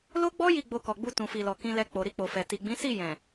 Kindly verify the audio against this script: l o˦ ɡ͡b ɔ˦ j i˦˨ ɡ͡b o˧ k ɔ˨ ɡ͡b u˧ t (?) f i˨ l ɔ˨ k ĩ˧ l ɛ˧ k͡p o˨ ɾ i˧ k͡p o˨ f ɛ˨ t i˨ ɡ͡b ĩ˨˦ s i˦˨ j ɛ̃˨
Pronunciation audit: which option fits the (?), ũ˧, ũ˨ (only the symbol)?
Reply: ũ˨